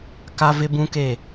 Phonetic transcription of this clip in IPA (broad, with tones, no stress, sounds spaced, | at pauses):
k a˦ v ɪ˦ b ũ˦ k e˦˨